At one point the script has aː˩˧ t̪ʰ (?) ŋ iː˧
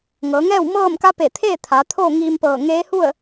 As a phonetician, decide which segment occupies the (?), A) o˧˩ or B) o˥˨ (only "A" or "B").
B